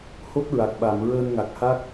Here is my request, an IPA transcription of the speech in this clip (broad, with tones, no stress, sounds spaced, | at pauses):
h o˦˥ t̚ ɹ a˨˩ k̚ ɓ a˨˩˨ m ɹ əː˧ n ŋ a˨˩ k̚ h a˦˥ k̚